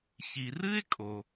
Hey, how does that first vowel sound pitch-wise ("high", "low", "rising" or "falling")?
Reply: low